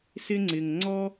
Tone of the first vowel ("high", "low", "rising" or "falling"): high